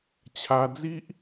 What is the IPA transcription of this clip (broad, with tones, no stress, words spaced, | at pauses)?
t͡ɕʰa˧d͡zi˦ʔ